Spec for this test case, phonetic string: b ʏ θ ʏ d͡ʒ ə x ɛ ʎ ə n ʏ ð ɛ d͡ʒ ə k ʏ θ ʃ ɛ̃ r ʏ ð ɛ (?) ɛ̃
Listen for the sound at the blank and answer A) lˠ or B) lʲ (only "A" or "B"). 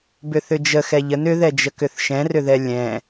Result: B